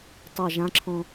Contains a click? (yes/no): yes